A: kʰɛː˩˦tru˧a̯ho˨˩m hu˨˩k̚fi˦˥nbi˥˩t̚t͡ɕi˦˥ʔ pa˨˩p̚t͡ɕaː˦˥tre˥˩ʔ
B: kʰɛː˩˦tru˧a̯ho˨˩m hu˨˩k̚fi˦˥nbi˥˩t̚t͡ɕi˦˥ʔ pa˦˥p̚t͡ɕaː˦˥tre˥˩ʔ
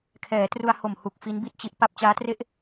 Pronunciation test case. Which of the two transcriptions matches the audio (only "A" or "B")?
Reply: B